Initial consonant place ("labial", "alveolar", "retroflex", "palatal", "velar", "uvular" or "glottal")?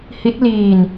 glottal